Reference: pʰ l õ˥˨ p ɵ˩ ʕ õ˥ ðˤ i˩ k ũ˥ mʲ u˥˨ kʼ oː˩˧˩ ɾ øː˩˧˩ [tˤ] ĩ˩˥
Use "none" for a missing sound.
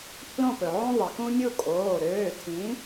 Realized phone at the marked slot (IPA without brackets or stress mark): tʰ